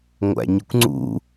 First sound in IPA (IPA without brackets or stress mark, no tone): ŋʷ